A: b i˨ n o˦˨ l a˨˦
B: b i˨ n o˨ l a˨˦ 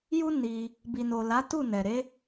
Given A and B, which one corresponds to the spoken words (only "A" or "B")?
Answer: B